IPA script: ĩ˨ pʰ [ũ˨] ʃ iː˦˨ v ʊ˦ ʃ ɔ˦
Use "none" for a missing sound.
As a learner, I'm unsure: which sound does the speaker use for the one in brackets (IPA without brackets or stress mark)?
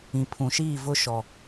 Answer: ũ˨